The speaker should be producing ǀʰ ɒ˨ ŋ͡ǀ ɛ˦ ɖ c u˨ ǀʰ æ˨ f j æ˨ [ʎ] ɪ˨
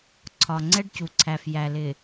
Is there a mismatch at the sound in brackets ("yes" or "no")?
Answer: yes